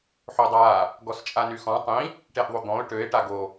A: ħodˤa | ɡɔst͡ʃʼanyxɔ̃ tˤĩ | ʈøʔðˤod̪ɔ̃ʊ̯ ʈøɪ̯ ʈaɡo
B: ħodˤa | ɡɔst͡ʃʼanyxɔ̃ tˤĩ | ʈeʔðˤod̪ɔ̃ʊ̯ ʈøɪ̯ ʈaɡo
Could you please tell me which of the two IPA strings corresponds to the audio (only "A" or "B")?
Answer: B